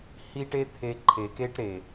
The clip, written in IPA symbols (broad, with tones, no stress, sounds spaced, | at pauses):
h i˦ ʈ e˦ t̪ʰ e˧ ǃʰ e˨ k e˦ ʈ ɾ e˨